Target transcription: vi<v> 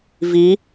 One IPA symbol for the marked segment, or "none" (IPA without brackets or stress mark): none